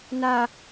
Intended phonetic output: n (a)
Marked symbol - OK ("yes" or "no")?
yes